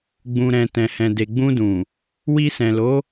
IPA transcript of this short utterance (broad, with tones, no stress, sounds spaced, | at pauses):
ɡ͡b ũ˨ ɾ ɛ̃˨ t ɛ̃˨ h ɛ̃˨ d e˨ ɡ͡b ũ˧ d ũ˨ | w i˧ s ɛ̃˨ l o˨˦